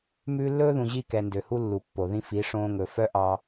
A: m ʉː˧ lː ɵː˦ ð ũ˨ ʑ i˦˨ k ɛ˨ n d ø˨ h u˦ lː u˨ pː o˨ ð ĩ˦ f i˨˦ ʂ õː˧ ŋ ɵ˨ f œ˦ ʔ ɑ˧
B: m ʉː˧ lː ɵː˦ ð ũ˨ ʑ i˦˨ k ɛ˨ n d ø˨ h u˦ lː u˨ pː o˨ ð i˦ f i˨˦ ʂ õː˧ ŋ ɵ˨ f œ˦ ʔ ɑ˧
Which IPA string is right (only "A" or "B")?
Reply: A